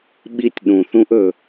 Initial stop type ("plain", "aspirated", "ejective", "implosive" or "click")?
implosive